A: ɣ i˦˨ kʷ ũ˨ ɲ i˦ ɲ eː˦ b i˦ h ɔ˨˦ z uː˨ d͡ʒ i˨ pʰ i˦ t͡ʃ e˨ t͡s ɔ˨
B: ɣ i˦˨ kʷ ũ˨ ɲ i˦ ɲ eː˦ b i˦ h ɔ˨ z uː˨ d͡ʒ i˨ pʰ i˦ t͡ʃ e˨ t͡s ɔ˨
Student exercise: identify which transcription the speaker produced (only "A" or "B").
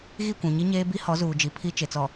A